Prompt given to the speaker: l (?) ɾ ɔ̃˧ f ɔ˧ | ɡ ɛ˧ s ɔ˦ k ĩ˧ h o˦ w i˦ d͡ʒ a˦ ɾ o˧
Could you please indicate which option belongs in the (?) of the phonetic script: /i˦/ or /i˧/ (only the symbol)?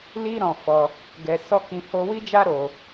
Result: i˦